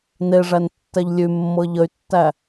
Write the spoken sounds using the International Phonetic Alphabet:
n e ʐ æ n tː ɛ ʎ lʲ ʉ mː ɤ ʎ ə y̯ tː æ

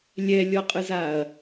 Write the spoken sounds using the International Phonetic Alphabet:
lʲ ɛ lʲ ɔ qʼ ɯ z a ɐ̯

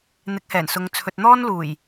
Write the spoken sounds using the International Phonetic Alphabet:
n̪ ɪ˨˥ k̚ h ɛː˨˩ n s ʊ˨˧ ŋ t͡sʰ ɵ˨ t̚ n̪ ɔː˥ n l uː˨˩ j

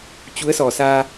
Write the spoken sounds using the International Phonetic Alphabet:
t͡ɕ u˨˦ ə̯ s ɔ˨˩ s aː˧

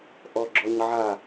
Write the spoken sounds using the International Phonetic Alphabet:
ʔ ɔ ɡ͡ǁ ɔ ɲ ʕ a

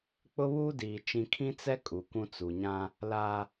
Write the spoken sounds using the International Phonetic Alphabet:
k͡p ʊ˦ β uː˦ d iː˨ t͡ʃ ĩ˦ kʰ ĩ˦ t͡s ɛ˦ kʼ u˨ kʷ ũ˦ t͡s u˨ ɲ ã˦ | l aː˦

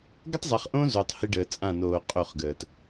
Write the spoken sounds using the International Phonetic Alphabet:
ɡ ə˦ tˤ zˤ ɛ˨ χ ʔ õ˦ z o˨ tˤ h i˦ ɖ əː˨ t͡sʼ ã˦˨ n oː˨ qʼ o˦˨ χ ɡ əː˨ t

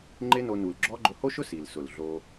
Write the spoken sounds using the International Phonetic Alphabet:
ŋ͡ǃ ɪ˦ n o˧ n u˨ l ɡ͡ǁ ɔ˦ ɡ͡ǃ ʊ˧ h o˦ ʃ ʊ˦ s i˨ l s ʊ˨ l ɮ o˧

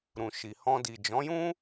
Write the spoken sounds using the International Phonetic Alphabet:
ɾ ũ˨ ʃ i˨ h ɔ̃˧ d i˨ d͡ʒ ɔ̃˨˦ j ũ˦

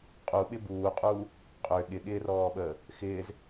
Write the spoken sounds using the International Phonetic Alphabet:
qʼ u ɓ ɪ b uː qʼ uː | qʼ ø ɠ ɪ ɠ ɪː r ɔː ɓ əː | x ɪː z

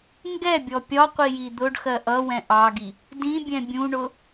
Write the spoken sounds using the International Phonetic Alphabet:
ŋ ɡ ɛ bʲ ɔ pʲ ɒ qʷ i j i d̪ ʊ ɖ x ɜ ʔ ʌ w ɛ̃ ʔ ɑ ɡ i | d ĩ bʲ ɛ̃ bʲ ũ ɳ ʊ

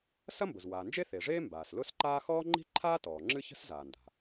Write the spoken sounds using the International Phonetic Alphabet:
s ɐ˥ m b ʊ˩ z w aː˩ n d͡ʒ e˥ θ e˩ ʐ eː˥ m b aː˩ s l ʊ˥ s ǃ aː˥ x ɔː˥ ŋ͡ǃ i̤˥ ǃʰ aː˥ t ɔː˩ ŋ͡ǁ ɨ˥ ç ə̤˥ s z aː˩ n d a̤˩

